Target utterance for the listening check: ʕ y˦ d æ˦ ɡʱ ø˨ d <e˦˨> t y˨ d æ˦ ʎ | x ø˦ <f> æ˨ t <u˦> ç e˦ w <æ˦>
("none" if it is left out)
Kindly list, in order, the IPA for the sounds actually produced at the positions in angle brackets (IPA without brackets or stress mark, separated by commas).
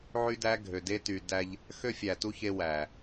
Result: e˦, fʲ, u˦, æ˨